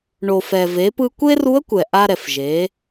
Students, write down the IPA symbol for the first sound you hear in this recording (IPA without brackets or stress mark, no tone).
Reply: ɳ